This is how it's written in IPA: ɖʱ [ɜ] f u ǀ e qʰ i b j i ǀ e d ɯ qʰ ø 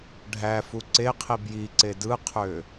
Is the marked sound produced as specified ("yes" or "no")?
no